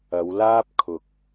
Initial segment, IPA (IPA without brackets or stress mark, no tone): ɐ